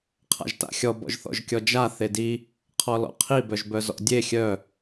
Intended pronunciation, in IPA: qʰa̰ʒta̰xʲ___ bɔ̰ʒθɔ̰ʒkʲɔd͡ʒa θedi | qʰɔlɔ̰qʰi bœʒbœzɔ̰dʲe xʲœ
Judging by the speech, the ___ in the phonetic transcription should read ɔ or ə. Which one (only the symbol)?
ɔ